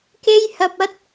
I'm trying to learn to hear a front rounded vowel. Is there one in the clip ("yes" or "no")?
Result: no